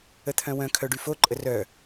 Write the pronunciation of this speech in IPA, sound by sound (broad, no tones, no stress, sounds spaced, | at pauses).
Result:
ə t̪ʰ œ̃ w œ̃ kʰ œ ɖ y f o ǃʼ ə r œ